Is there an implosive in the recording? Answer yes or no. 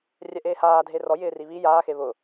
no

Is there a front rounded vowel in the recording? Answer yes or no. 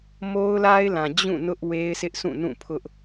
no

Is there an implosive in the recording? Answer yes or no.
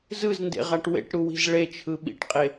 yes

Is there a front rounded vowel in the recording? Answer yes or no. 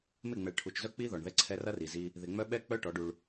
yes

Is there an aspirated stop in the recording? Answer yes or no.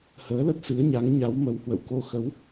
no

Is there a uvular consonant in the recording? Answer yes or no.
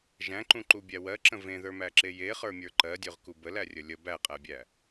yes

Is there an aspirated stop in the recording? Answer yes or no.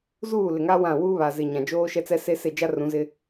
no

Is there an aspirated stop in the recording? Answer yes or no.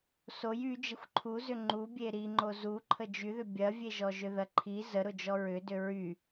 yes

